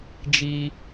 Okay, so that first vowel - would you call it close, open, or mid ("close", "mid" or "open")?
close